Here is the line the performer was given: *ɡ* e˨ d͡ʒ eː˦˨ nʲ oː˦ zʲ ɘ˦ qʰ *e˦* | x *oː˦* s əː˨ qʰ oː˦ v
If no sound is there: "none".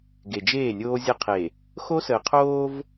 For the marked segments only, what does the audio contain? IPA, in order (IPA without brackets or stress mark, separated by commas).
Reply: ɡ, e˨, o˦